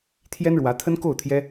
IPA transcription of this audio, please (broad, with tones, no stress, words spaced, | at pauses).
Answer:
t̪ʰjɛ˥nɻwä˧˥t̪ʰə˥n ko˥˩ʊ̯ t̪ʰjɛ˥